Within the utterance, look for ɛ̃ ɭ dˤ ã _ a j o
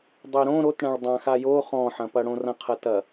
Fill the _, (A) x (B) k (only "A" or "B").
A